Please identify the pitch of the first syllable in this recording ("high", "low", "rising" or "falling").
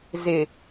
low